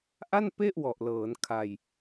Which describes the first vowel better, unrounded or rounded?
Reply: unrounded